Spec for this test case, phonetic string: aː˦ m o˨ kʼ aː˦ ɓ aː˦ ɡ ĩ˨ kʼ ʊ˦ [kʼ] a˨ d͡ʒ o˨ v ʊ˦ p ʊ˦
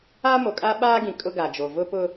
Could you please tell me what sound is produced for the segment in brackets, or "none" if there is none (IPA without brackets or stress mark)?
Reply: ɡ